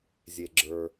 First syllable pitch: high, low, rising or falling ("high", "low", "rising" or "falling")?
low